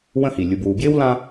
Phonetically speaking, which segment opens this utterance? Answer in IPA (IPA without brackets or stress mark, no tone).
w